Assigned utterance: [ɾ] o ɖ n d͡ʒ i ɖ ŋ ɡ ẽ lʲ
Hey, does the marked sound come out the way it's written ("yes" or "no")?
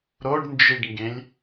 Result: yes